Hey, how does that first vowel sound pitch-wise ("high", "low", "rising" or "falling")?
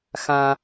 high